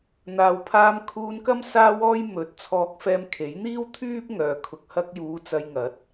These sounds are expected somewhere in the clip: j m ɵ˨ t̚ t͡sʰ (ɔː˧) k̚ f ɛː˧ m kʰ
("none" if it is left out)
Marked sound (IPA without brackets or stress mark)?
ɔː˧